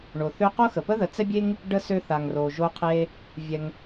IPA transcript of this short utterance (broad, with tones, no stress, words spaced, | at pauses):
ɳo˩θø˧ qo˥xə˩pə˥ ðə˩ t͡sɛ˥bʲe˥ŋ | ɖə˧ sø˧θa˩ŋro˩ ʒo˧qʰe˧ | vʲɛ˩ŋ